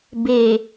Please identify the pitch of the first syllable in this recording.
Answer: low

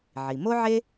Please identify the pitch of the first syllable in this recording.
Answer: low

